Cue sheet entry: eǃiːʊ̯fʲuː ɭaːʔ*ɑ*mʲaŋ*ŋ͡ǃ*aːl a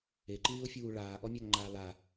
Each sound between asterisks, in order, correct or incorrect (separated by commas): incorrect, correct